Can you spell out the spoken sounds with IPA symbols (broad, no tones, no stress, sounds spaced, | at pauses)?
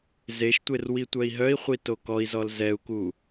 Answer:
z e ʃ tʷ e r w i tʷ œ i̯ ɦ œ i̯ χʷ i t o k ɔ i̯ z ɔ l z ɛ u̯ k u